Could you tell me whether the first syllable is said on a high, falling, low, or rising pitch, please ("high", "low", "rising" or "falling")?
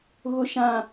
low